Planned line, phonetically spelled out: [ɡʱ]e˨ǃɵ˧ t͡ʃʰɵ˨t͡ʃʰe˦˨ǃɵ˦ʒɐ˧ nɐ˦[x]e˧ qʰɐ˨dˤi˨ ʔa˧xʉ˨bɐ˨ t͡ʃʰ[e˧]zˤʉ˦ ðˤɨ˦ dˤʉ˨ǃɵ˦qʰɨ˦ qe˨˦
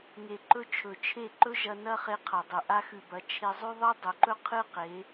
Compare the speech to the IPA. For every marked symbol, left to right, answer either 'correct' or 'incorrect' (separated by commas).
incorrect, incorrect, correct